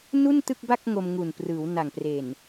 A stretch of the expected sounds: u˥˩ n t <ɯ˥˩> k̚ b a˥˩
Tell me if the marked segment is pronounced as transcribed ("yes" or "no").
yes